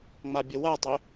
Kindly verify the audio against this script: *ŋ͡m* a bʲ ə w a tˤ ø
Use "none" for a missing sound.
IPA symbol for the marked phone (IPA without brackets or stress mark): ŋ͡m